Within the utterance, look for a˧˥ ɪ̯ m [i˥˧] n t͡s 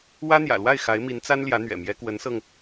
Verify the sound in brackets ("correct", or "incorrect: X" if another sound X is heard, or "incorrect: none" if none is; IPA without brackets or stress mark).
incorrect: i˧˥